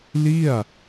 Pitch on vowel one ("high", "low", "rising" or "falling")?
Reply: falling